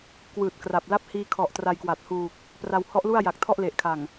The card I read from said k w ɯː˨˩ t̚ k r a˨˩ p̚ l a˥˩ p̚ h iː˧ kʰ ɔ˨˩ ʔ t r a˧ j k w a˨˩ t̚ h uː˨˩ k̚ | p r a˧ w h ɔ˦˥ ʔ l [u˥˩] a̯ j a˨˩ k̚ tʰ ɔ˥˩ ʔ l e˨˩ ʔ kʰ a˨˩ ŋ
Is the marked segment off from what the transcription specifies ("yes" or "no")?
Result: no